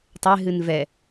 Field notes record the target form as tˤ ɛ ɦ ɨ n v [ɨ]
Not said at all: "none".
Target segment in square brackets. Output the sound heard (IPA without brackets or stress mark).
ɛ